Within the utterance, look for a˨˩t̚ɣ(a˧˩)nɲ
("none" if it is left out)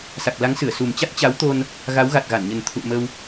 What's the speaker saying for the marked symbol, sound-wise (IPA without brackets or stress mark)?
a˧˩